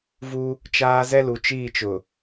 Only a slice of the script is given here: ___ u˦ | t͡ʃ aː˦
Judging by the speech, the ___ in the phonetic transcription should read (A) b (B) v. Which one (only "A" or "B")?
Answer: B